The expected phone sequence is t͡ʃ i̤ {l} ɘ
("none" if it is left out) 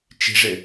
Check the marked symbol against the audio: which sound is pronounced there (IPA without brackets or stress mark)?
ʐ